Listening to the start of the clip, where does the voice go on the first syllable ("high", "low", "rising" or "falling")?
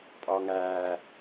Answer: low